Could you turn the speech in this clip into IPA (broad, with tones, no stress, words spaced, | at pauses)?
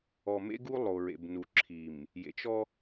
ɔ˨mḛ˦ɡu˦ lˠo˨ɹḛ˨bnu˨ ǁʰi˨m | jḛ˨t͡ʃɔ˦